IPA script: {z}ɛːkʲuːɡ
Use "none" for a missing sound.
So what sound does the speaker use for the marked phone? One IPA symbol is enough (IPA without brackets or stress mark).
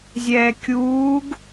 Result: zʲ